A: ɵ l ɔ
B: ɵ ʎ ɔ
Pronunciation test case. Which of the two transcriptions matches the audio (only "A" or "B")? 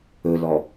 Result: A